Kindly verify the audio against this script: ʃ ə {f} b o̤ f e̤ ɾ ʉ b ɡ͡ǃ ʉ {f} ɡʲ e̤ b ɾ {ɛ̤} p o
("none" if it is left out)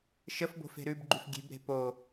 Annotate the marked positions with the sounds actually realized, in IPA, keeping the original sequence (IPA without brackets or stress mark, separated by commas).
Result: f, f, e̤